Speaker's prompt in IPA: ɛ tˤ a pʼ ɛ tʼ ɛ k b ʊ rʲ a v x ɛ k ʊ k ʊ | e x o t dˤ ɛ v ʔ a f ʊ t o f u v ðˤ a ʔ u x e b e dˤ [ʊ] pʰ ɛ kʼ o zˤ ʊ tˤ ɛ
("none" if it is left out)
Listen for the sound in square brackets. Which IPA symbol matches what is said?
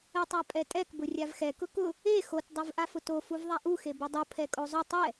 u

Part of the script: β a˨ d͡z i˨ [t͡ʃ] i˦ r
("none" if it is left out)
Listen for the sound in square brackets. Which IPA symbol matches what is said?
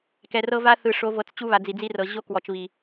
d͡z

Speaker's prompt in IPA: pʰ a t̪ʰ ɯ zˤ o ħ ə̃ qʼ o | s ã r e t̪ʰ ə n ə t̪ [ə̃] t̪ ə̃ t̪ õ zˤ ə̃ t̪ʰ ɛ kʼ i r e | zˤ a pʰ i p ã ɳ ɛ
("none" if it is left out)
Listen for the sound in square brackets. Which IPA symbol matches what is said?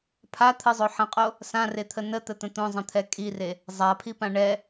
ə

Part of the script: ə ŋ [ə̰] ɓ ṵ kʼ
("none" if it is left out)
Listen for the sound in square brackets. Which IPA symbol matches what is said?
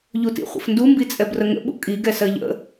ə̰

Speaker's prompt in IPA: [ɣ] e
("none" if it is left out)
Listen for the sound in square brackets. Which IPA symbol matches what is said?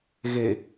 ɣ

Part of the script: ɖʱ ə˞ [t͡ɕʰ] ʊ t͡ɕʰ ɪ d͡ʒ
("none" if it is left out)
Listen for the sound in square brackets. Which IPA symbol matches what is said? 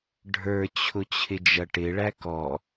t͡ɕʰ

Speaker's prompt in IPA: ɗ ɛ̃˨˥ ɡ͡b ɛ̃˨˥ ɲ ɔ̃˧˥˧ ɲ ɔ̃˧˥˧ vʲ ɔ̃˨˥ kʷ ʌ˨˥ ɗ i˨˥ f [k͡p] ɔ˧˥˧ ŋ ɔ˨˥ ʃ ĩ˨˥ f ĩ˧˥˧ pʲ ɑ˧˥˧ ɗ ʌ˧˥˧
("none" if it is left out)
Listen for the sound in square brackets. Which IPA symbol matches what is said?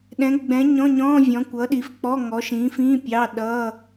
k͡p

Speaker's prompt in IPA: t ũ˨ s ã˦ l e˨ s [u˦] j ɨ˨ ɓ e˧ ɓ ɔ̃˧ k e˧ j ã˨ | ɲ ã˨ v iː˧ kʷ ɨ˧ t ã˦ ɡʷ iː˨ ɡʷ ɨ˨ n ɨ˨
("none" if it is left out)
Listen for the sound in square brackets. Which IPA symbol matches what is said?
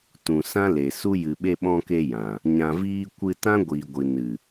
u˦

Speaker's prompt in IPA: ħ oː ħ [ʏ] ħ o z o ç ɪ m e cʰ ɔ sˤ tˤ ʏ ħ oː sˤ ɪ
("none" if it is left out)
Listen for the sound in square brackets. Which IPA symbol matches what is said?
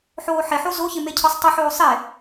ɪ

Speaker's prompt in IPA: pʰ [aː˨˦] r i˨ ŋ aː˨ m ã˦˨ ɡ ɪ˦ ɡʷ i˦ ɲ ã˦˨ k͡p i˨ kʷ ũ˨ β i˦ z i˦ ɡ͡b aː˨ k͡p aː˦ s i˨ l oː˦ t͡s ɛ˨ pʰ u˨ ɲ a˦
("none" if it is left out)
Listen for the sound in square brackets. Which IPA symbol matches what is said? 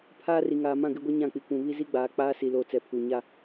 aː˦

